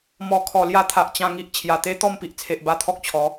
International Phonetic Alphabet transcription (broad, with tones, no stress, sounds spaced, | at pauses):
m ɔ˨˩ kʰ ɔ˨˩ l j a˧ t̪ʰ a˨ ʔ t͡ɕ ã˧ ŋ i˨ ʔ t͡ɕʰ j a˨˩ t̪ e˦ t̪ ɔ˥˧ m p i˨ ʔ t͡sʰ e˨ ʔ b a˧ t̪ʰ ɔ˦ k̚ t͡ɕʰ ɔ˨˦